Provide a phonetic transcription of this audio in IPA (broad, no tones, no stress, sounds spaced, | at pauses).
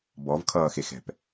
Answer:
b ɔ v kʰ ʌː x e x ɛ̤ p